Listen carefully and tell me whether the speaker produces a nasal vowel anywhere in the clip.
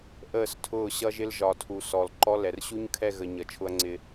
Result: no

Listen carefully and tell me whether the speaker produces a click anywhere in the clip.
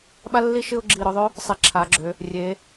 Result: yes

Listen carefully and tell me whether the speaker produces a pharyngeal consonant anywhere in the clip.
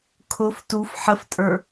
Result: yes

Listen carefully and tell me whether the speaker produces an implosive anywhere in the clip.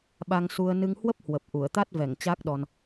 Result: yes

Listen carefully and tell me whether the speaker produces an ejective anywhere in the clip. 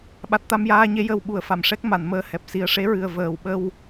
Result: no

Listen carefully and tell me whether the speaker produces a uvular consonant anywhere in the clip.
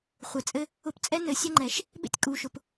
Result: yes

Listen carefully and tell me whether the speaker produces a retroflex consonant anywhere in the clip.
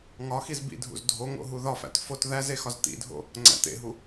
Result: no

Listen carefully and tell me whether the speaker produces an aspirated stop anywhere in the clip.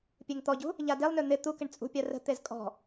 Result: no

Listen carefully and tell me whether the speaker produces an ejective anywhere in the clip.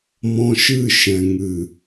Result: no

